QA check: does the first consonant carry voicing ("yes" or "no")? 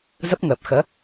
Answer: yes